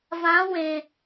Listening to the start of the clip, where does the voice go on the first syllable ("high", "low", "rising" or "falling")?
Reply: rising